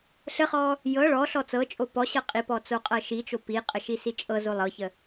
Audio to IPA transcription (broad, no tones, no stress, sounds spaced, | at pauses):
ɬ ə χ ɔ | j ɤ ɭ ɔ ɬ ɔ t͡s ɤ t͡ʃʼ o p ɔ ɕ ɤ qʼ i p ɔ t͡s o qʼ ɤ ʃ i t͡ʃ o p i qʼ ə ʃ i s i t͡ʃʼ ɤ z o lˠ ɤ ç ə